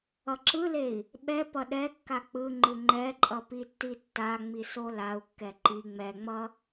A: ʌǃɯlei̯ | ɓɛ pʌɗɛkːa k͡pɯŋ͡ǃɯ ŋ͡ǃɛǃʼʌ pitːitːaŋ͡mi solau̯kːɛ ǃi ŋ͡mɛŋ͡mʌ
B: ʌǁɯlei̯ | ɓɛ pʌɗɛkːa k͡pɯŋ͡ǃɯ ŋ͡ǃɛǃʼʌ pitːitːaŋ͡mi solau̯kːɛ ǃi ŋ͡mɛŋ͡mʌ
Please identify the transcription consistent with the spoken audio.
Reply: B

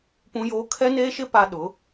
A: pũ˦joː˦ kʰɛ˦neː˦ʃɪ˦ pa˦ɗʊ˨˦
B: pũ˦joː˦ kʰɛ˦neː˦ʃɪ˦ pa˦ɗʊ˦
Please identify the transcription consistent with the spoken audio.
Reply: A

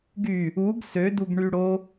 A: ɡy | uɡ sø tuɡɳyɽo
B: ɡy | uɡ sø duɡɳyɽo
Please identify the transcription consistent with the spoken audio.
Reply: B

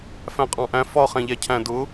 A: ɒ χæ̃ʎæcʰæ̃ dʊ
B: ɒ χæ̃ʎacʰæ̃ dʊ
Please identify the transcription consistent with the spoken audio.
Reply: A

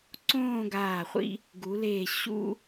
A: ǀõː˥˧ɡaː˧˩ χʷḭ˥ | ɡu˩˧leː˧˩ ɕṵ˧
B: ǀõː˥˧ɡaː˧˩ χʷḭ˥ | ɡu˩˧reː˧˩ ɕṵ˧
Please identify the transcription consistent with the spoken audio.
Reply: A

